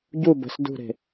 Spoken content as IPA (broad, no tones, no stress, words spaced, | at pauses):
ɟu bə̤s dṳɾe̤